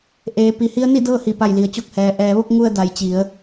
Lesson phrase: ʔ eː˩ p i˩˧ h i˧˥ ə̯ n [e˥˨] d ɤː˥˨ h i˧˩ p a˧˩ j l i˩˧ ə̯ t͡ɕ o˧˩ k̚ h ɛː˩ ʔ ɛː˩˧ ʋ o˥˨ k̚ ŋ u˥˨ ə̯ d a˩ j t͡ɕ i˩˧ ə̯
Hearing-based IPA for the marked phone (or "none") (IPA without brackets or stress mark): i˥˨